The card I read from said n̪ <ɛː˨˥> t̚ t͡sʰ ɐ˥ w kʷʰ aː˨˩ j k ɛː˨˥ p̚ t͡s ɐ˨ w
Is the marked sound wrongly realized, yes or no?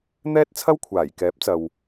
yes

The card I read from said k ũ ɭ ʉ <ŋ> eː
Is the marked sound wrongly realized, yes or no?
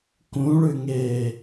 no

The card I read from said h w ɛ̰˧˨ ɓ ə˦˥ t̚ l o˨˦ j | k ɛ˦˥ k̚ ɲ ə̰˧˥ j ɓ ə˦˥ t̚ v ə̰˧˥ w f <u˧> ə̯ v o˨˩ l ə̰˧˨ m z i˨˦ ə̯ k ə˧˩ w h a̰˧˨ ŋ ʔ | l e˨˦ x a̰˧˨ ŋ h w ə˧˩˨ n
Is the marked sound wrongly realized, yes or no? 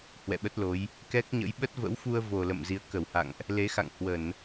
no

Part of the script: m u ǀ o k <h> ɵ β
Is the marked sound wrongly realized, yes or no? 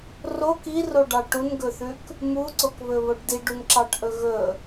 yes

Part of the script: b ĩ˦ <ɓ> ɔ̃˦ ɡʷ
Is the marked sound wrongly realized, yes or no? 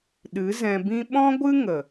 no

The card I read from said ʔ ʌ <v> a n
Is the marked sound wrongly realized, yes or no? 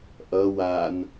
yes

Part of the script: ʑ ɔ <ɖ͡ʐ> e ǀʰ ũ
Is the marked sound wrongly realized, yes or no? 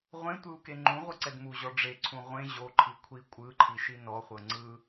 no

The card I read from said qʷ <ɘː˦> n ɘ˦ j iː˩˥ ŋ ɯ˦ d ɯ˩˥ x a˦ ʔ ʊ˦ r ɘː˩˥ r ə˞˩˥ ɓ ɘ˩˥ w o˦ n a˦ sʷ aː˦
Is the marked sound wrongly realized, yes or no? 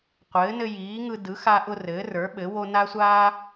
yes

